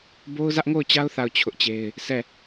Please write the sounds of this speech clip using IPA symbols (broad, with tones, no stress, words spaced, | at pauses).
bo˦ʊ̯zä˦ʔŋo˦˨ʊ̯t͡ɕa˦ʊ̯ θa˦˨ʊ̯t͡ɕʰʊ˦ʔt͡ɕe˦ɪ̯ | sʰɛ˦˨